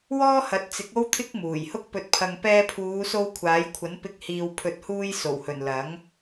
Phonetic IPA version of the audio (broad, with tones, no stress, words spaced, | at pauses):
wɔː˥hɐ˨˥t̚t͡sɪ˨˥k̚ o˥wt̪ʰɪ˥k̚ muː˨˩jhʊ˥k̚pɵ˧t̚pʰɐ˧ŋ pɛː˧pʰuː˨˧so˧w kʷʰaː˨˥jkʷʰɐ˨˥npɪ˧k̚ hiː˨wpʰɵ˨t̚huː˧j so˨˩whɵ˨˩n lɐ˨˥ŋ